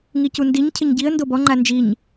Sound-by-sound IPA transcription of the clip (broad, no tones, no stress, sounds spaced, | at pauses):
ŋ i c u n d i ɲ cʰ ɪ ɲ ɟ i ə̯ n d o b ɔ ŋ͡ǃ a n d͡ʒ i ɲ